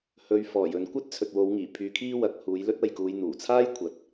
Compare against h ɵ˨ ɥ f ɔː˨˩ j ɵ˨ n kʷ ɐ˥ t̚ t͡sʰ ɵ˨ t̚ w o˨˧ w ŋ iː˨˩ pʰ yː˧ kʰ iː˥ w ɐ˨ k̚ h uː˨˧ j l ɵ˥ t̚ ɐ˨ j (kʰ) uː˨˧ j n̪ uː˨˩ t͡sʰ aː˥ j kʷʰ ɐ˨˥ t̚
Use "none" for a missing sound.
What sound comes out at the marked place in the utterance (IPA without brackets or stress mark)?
k